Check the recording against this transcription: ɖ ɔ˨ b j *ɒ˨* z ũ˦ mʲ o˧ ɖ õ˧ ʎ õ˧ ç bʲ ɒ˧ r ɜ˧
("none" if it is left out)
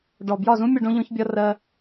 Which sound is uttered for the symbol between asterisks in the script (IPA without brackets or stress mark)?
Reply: ɒ˦˨